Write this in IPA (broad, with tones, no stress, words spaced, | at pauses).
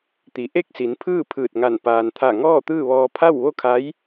t̪i˩˧ʔe˥˨k̚si˩˧npʰɯː˥˨ pʰɯː˧˩t̚ŋa˧˩n paː˩nt̪ʰa˧˩ ŋɔː˥˨t̪ɯː˥˨ʋɔː˧ pʰa˥˨wʋo˥˨kʰa˧˥j